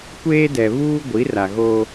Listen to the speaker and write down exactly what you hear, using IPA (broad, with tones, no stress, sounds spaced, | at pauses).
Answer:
kʷ eː˦ d ɛ˨ β uː˦ ɡʷ i˨˦ r a˨ ɣ oː˦